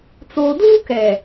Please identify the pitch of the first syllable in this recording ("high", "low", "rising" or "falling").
low